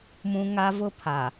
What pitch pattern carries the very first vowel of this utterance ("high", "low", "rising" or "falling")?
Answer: high